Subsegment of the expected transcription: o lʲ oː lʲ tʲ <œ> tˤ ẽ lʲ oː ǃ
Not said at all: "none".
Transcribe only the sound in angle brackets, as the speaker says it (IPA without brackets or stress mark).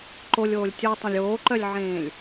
ɵ